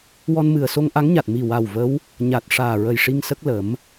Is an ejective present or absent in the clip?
absent